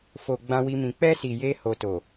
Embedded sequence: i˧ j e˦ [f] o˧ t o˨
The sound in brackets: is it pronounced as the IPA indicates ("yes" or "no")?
no